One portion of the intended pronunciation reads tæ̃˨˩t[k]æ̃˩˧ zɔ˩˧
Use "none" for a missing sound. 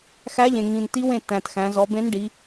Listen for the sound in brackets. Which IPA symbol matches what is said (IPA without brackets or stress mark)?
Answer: x